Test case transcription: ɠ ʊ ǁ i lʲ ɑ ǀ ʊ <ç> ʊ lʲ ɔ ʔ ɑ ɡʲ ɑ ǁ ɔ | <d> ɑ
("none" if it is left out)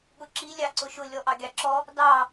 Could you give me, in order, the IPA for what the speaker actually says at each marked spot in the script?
ʃ, d

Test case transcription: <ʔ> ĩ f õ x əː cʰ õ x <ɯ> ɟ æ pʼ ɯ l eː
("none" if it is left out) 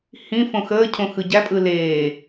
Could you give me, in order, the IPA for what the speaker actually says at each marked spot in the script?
h, ɯ

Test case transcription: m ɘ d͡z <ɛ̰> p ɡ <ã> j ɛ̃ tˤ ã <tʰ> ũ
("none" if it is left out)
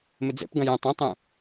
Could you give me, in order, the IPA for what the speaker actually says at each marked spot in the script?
ɛ̰, ɐ̃, tˤ

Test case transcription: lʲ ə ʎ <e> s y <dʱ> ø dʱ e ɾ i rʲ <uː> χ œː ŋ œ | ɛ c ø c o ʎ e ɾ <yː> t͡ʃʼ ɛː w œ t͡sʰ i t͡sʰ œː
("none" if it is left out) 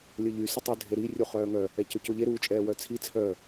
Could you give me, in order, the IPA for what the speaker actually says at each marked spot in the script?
y, tˤ, u, uː

